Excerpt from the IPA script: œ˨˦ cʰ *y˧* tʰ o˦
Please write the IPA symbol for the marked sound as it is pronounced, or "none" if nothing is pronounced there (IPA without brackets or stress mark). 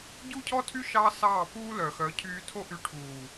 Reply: yː˧